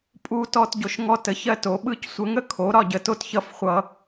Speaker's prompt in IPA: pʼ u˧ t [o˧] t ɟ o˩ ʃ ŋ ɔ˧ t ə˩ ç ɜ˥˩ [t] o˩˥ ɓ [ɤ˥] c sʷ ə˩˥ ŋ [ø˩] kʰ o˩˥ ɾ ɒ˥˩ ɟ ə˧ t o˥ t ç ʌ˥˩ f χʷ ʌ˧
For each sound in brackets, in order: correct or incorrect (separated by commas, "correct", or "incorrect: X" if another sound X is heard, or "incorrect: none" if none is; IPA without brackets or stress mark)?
incorrect: ɔ˧, correct, incorrect: ɯ˥, incorrect: ə˩